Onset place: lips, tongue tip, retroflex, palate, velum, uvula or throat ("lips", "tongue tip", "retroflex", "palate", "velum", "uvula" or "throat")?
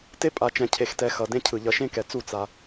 tongue tip